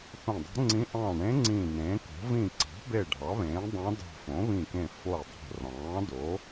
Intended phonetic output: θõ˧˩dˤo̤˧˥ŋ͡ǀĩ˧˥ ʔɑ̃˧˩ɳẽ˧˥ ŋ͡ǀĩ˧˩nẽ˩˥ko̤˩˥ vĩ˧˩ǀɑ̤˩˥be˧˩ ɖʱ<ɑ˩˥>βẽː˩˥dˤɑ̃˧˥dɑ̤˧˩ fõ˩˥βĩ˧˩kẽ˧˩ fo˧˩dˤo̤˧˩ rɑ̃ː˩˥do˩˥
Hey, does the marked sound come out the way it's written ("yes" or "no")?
yes